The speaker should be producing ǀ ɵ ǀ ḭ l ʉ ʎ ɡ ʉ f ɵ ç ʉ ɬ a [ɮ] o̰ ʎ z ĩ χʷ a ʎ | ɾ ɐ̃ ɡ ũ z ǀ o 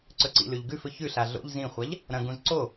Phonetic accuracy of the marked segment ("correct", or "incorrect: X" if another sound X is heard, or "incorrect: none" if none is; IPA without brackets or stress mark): correct